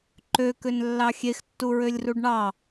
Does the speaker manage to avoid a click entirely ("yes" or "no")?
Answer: no